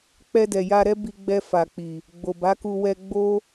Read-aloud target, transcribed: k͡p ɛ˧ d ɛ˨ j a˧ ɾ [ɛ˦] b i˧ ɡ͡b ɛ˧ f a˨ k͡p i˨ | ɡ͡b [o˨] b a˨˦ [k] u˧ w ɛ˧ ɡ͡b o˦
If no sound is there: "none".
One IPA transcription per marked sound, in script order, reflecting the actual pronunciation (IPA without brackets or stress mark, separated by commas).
ɛ˦, o˨, k